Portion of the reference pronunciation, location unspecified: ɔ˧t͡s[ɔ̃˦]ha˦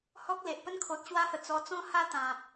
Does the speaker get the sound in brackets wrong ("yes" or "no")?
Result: no